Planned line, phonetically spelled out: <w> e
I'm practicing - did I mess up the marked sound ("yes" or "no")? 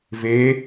yes